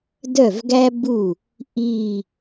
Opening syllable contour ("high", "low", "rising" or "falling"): falling